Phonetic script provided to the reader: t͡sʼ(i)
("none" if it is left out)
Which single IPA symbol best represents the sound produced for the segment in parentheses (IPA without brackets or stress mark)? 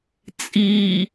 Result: i